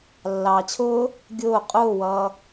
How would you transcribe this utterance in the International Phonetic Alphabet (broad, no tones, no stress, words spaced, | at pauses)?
lːɑːt͡ɕʰʊː | ɡʲʊː qʼʊːwʌː